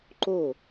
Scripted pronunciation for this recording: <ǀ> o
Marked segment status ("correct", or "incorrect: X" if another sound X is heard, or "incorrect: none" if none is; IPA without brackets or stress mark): incorrect: ǃ